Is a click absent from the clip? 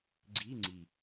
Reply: no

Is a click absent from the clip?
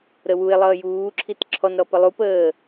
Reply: no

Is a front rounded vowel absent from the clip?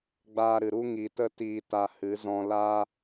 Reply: yes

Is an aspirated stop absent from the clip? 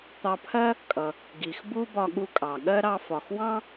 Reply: no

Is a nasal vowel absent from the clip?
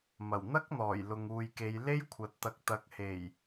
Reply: yes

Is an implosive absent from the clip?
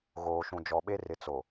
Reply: no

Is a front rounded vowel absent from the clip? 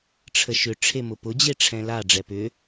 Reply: no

